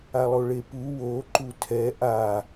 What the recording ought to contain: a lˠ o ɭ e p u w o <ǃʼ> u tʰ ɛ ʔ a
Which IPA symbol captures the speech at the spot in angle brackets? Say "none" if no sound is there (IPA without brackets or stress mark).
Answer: ǃ